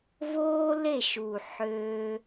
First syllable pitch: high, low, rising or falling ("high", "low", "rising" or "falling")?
high